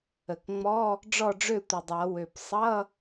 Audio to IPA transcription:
ə˨˩k ŋ͡mɔ˧˥˧ | ɖ͡ʐɔ˥˨ɖ͡ʐø˥˨tʷə˨˩dˤa˨˩˦ wø˨˩p sˤʌ˧˥˧

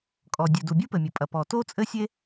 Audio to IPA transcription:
kʼɔ˩dʲɨ˩ du˩bʲu˥pɘ˩mʲɐ˩ pʼɐ˩pɔ˩to˥ t͡sʼɘ˥sʲe˥

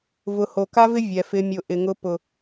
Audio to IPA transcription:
vʊ˨ho˨ ka˦vɪ˦ vʲɛ˨ fɪ˨mʲʊ˨ ʔɪ˨ŋʊ˦ pʊ˨

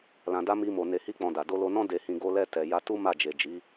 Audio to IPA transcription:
lã˨da˧ mi˧mo˨ ne˧hi˦k͡pɔ̃˧da˨ do˧lo˧nɔ̃˦ de˧hĩ˧ ɡo˧lɛ˧tɛ˨ ja˧tu˦ ma˦˨d͡ʒe˨ d͡ʒi˨˦

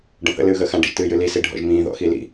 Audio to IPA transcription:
ɖə̃θə̰ lɨːɣəːxã ɖḭʒtɨːjɨli siɖʱɔ̰ʒmĩː ðɔ̰xilḭ

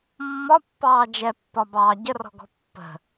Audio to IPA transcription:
mːɒpːɑː d͡ʒɛpːɒbɑː ɟərɔ̤ɡɔ̤ pːə̤

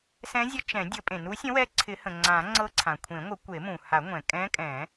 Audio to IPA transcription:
sɛ̃˧˥zʲə˧˥t͡ʃɛ̃˨˩˦ dʲə˨˩˦pʼẽ˩nu˧˥sʲə̃˧˥ wɛ˧˥ǀʰɪ˨˩˦hə̃˩ ŋ͡ǀã˨˩˦ŋ͡ǀɤ˧˥ ǀʰã˩kʷʰẽ˨˩˦ŋʷə˨˩˦ kʷe˨˩˦mũ˩ha˨˩˦ŋʷɛ̃˩ kʼɛ̃˧˥kʼɛ̃˨˩˦

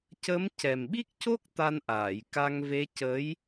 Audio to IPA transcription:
cə˧˥m cɛ˨˩mɓi˦˥k̚co˦˥k̚ t̪a˧nʔaː˨˩˨jka˧ŋve˧˥ cə˧˥j

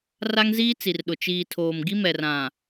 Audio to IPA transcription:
ra˦ŋziː˦t͡si˨rɗʊ˨ t͡ʃiː˨tʰoː˨mɡi˦mɛ˨r ã˨

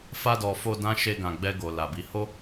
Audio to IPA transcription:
fa˧dɔ˨ fo˧ dã˦ʃe˧ ɡã˨ɡ͡bɛ˧ ɡo˨la˨bi˨˦ ho˦

